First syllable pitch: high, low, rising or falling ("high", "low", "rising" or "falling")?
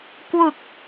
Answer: low